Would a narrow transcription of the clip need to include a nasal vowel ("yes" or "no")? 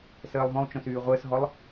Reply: yes